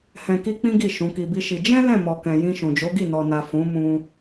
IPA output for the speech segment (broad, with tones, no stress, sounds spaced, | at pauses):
h ɛ̃˧ k i˦ k͡p ĩ˦ ɡ i˦˨ ʃ ũ˨˦ k i˧ b i˦ ʃ i˧ d͡ʒ ɛ̃˦ l ɛ̃˦˨ m ɔ˨ k ɛ̃˨ j ĩ˧ ʃ ũ˨ d͡ʒ o˨˦ ɡ i˦˨ n ɔ˨ n a˨ f ũ˨˦ m ũ˧